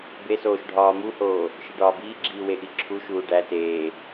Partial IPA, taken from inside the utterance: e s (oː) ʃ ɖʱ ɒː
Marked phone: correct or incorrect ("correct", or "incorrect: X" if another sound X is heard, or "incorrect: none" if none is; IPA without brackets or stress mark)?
correct